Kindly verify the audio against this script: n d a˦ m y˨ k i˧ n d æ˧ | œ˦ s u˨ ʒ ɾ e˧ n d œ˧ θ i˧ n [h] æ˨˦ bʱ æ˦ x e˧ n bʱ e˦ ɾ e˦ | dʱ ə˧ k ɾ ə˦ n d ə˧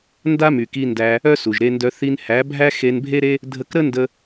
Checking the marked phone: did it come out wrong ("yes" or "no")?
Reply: no